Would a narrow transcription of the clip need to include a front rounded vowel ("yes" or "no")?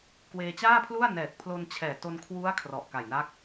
no